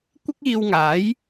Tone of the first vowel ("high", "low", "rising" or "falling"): high